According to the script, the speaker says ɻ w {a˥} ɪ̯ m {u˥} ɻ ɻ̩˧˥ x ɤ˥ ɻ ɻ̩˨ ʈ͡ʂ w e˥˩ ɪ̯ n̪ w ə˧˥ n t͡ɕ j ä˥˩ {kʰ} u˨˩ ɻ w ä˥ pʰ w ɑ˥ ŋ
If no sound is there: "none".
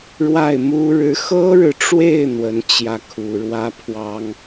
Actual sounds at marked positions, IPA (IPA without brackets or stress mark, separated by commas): a˥˩, u˥, kʰ